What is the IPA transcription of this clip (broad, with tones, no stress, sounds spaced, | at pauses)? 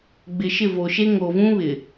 ɡ͡b ɪ˨ ʃ ɪ˦˨ v o˨ ʃ e˦ ŋ o˨ v ũ˦ β ɪ˨